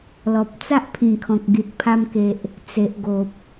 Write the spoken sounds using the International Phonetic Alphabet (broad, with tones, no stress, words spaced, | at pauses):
lɔ˨p̚t͡sa˦ʔpʰĩ˨˩kʰɔ̃˨k̚ ɡi˨t̚pʰa˧mke˨ʔ | t͡se˨ʔɡo˨p̚